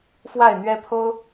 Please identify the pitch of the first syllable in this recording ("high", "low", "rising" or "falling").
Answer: falling